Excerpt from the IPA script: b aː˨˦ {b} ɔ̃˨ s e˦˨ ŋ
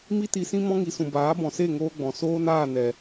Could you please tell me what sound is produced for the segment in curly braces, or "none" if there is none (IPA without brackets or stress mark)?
b